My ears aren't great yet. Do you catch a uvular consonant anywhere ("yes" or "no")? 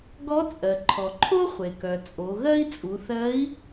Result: yes